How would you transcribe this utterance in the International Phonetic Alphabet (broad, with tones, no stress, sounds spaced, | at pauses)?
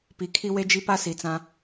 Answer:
p i˨ kʰ i˦ w e˦ d͡ʒ i˦ p a˦ s i˨ t͡s ã˦